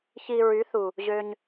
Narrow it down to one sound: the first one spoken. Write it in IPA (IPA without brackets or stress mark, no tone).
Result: ç